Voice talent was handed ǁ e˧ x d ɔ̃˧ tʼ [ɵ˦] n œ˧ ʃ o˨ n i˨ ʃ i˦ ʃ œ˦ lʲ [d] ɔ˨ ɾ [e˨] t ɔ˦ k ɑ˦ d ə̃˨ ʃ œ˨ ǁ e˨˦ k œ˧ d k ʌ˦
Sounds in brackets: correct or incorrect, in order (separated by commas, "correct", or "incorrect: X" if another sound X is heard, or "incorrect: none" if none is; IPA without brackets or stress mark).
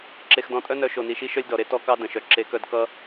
incorrect: œ˦, correct, incorrect: e˧